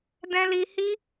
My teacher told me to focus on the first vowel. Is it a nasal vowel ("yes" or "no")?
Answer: yes